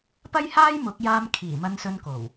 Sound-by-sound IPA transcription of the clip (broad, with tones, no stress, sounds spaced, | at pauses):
p ɐ˥ j h aː˥ j m ʊ˨˥ k̚ j aː˧ m kʰ iː˨˩ m ɐ˧ n s ɵ˧ n k o˨˩ w